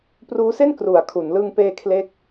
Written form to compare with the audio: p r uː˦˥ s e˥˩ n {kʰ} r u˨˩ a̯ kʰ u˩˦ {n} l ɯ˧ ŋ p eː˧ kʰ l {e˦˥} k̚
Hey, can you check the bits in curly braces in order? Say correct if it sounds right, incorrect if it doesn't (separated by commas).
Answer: incorrect, correct, incorrect